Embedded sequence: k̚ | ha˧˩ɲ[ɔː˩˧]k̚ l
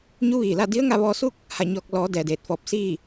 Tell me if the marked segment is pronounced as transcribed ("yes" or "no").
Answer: no